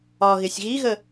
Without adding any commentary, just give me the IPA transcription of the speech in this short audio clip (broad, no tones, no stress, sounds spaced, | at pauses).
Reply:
ɒ ɣ ɪ sʲ ɣ i ɣ ə